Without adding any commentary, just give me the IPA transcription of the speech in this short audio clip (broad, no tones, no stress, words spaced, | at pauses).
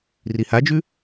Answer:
rihad͡ʒʉ